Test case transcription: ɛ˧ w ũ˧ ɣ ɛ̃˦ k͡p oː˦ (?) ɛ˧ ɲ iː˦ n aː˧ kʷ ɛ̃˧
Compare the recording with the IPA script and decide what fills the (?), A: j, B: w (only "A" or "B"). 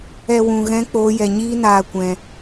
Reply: A